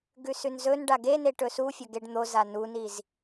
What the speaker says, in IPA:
ɡʉsʉnzɵn ɖaɡeneʈɵ sufʲɐɡeɖ n̪oza nuniz

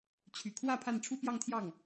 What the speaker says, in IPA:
t͡ɕʰy˨˩kʰwä˥˧ pʰa˥˩nʈ͡ʂʰu˥pjɑ˥˧ŋt̪ʰjɑ˥˩ŋ

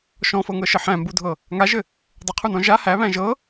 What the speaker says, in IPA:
ʃɔ̃fɤŋɤʃɘ ħæ̃mbudʱɤ | ŋaʒɘ | dˤɘqʰunɔ̃ ʒa hæβæ̃ ʒɤ

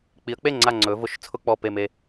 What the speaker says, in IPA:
k͡pi˩˧ə̯k͡pe˥˩ŋ͡ǀa˧˩ ŋ͡ǀɵ˩˧ vʊ˧˩˧ʃ t͡sʰʊ˧˥˧k͡pɔ˧˩ pe˧˩me˧˩

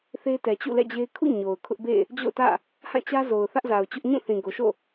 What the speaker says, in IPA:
θe˦tɛ˨t͡ɕṵ˦˨ lɛ̰˦˨d͡ʑe˦ɪ̯ kʰṵ˦˨ ɲo˨ʊ̯kʰʊ˦ʔbḛ˦˨ | d͡ʑo̰˦˨ʊ̯tä̰˦˨ | hã˦˨ t͡ɕä˦zo˨ʊ̯ θä˦ʔza˨ʊ̯t͡ɕʊ˦ʔ ɲũ˦˨θĩ˨ɡo˨ ʃo̰˦˨

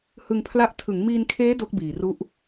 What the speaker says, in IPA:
hɯ˧ŋpʰla˦˥ʔ tʰɯ˩˦ŋmiː˧nkʰeː˦˥ do˦˥k̚biː˨˩ru˦˥ʔ

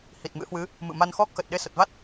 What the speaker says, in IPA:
hi˨˩t̚mɨ̰˧˥hwɨ˨˦ | mɨ̰˧˨ma˧nxɔ˦˥k̚xə˨˩t̚ ɗe˧sə˨˩t̚va˦˥t̚

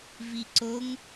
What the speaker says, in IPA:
viǀoŋ

